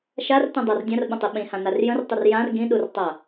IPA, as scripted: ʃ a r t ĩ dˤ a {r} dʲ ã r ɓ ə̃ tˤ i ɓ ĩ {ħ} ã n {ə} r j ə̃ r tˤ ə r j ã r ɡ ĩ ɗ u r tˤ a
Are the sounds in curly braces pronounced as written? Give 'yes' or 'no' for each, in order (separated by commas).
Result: yes, no, no